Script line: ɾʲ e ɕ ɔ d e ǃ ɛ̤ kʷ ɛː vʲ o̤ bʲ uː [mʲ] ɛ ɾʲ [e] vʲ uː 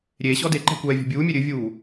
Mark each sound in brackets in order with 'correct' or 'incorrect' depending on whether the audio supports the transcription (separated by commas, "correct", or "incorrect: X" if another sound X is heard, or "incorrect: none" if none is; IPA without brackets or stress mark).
correct, incorrect: ɨ